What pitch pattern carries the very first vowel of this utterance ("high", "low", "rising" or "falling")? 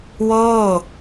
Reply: falling